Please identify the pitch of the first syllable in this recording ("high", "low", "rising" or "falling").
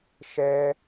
high